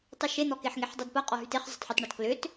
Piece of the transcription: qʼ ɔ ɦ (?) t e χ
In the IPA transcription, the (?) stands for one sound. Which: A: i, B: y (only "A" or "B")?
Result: B